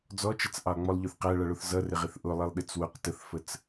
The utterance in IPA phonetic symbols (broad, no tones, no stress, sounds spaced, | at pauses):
d͡z ɔ t͡ʃ ʌ t͡s ʔ ɑ lˠ ŋ͡m ɔ lˠ ʎ ʊ θ q æ ɭ ʌ ɭ ʊ θ z ʌ r ɪ ʁ ɪ θ ʔ ʊ lˠ i lˠ ɗ ɪ t͡s w ʊ q t ə θ f ə t͡s